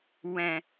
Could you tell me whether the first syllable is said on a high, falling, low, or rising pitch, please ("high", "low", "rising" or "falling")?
low